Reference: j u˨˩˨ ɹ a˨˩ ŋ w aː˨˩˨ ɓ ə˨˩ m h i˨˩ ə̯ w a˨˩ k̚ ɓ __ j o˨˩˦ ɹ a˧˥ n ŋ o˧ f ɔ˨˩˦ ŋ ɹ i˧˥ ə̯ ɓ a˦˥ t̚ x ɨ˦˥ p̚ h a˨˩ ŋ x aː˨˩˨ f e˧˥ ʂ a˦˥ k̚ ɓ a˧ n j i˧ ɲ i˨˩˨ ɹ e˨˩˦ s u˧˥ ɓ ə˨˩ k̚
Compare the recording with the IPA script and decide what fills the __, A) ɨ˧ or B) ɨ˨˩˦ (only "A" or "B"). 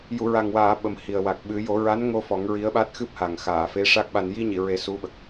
B